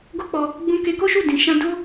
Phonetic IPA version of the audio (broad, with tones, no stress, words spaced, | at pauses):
ɡo˦k͡pɔ˧ | ɡ͡bũ˧ke˧ko˦ʃu˦˨ dĩ˨ʃã˧do˦